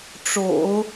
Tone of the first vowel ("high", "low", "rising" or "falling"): low